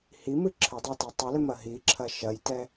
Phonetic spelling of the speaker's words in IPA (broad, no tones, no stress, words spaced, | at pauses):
himɨ ǁʰɘdˤɛtɨ tˤɛlɘmɐ ɦiǁʰɐ ʃɐjtɛ